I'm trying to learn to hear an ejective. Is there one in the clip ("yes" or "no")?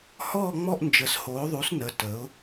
no